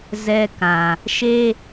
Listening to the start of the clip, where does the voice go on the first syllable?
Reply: high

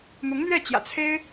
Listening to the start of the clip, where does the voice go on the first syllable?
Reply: rising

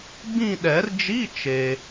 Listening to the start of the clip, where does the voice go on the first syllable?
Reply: falling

